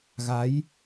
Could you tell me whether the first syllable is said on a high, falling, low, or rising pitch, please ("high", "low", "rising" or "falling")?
rising